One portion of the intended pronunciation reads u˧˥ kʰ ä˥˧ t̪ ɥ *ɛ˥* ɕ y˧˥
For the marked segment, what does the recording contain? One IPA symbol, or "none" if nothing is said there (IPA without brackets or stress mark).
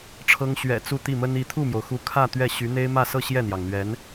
ɛ˥˩